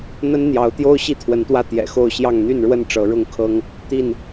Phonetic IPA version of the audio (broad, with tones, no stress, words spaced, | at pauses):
n̪ə˦nn̪jɑ˨˦ʊ̯t̪jo˦ʊ̯ ɕi˥˨t̪ʰwə˨˦nt̪wä˦ t̪jɛ̰˨˩xo˥˨ʊ̯ɕjɑ˥˨ŋ n̪y˥˨nɻwə˥˨n ʈ͡ʂɤ˨˦ɻʊ˥˨ŋkʰɤ˦ŋ | t̪i˥˨n